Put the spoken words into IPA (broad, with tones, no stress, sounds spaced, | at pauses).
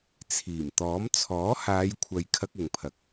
t͡sʰ iː˨˩ m t̪ ɔː˨˥ m t͡sʰ ɔː˨˥ h aː˨˧ j kʷʰ ɐ˨ j kʰ ɐ˥ k̚ ʊ˧ ŋ pʰ ɐ˧ k̚